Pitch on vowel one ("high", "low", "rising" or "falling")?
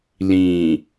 low